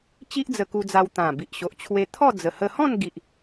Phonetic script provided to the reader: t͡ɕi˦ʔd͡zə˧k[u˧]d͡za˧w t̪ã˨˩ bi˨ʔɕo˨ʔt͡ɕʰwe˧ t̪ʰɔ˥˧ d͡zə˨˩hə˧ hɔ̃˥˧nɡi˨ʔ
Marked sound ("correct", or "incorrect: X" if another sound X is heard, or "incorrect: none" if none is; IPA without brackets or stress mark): correct